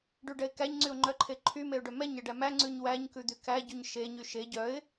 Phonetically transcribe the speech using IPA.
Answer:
ɖ ʉ ɖ ɛ ɪ̯ k æ ɲ ŋ͡ǀ y ʊ̯ ŋ͡ǃ œ ǃʰ e ǃʰ y m e ʊ̯ ɖ œ m ɛ ɲ ɛ ɖ æ m æ ŋ͡ǀ ʉ ɲ w æ ɲ k ʉ d̪ y k æ ɟ y ɲ ʃ e ɲ y ʃ e ɟ œ ɪ̯

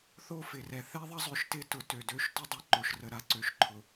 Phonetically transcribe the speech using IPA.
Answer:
θ o˦ f ɪ˨ r ɛ˨ θ ɛ˦ ðˤ ɐ˦ zˤ ø˨ ʃ t ɪ˦ t ʊ˨ t ø˨ d ø˦˨ ʃ t ʊ˦ dˤ ɐ˦ ǃ o˨ ʃ r ə˨ ɾ a˦ ǀ ø˨ ʃ ǃʰ ʊ˨

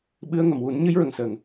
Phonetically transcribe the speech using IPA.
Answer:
ɓ ɨ˧ ə̯ ŋ ə˨˩˨ m w u˨˩˦ n ɲ ɨ˧˥ j ɹ ə˨˩˨ ŋ s əː˨˩ ŋ

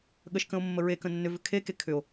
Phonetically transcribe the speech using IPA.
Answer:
ɠ ə ʃ k ə̃ o̯ mː ə ɹ e k ə̃ nː ʏ v ʏ kʰ e k e kʰ ʏ o̯

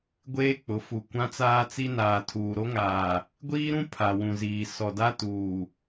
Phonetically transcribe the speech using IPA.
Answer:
ɡʷ eː˦ k͡p ʊ˨˦ f u˨ kʷ ã˦ t͡s aː˦ t͡s i˦ n aː˨ tʰ uː˨ ɾ o˦ ŋ aː˨ | ɡʷ iː˦ ɾ ũ˦ pʰ a˨ w ũ˨ z iː˨ s ɔ˨ d a˦ t uː˨

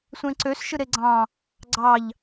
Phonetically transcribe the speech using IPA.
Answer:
sʷ ẽ ǀ ø s ʃ ɯ ɾ e ɡ͡ǀ ɑ̃ | ɡ͡ǀ ɑ ʎ

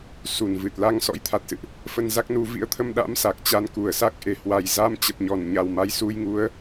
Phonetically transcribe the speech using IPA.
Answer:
s u˧˩ n v ɨ˨˩ t̚ l a˧ ŋ s ɔ̰˧˥ j t̪ʰ a˨˩ t̚ s ɨ̰˧˨ ʔ | f ə˧ n z a˦˥ k̚ n u˧ v ḭ˧˥ ə̯ t̪ʰ ə˧ m ɗ a̰˧˥ m s a˨˩ k̚ t͡ɕ a˧ n k u˧˩ ə̯ s a˦˥ k̚ ʔ e˧˩ h w a˨˩ j z a˧ m t͡ɕ ə˨˩ p̚ ɲ ɔ˧˩ n ɲ a˨˩ w m a˧ j s u˧ j ŋ u˨˦ ə̯

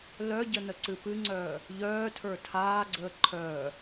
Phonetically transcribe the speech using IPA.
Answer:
l œ ɟ ə n ə ǀ ɨ p ɨ ŋ͡ǀ œː | ʎ œː tʰ ə˞ tʰ aː ɡ͡ǀ əː ǃʰ œː

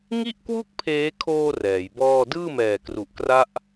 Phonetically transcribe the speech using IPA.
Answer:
ŋ i˥˩ ʔ k w u˥˩ k̚ pʰ eː˦˥ kʰ oː˧ r ɛː˩˦ j b ɔː˥˩ d ɯː˥˩ m ɛː˨˩ k r u˨˩ ʔ k r a˦˥ ʔ

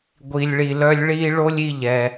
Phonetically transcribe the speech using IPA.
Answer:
ɡʷ i˩ lʲ ɭ i˩ l œ˧ lʲ ɭ i˧ ɭ o˥ lʲ i˧ ʎ ɛ˩

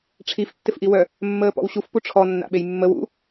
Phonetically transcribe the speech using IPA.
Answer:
ʈ͡ʂʰ i f tː ɪ f ʔ i w œ | mː əː p ɔ̰ w ɕ u f p u ʈ͡ʂʰ ɔ nː a̰ ɓ e j mː ə w ṵ

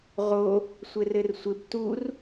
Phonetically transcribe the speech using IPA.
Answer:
ʁ o | sʷ ɘ r ɘ r sʷ ɘ b t u r

